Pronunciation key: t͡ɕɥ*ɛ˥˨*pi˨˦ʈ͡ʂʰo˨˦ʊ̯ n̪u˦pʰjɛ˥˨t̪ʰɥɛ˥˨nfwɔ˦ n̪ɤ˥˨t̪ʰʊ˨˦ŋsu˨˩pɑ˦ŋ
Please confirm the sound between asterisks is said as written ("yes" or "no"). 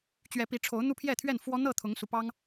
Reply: no